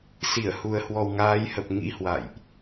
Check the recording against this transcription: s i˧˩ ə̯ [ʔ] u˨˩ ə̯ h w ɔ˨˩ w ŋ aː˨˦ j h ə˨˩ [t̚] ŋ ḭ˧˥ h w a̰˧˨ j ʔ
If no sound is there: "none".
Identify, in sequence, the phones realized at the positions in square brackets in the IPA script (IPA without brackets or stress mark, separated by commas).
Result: h, p̚